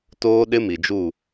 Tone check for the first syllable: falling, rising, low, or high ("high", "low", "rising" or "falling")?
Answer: high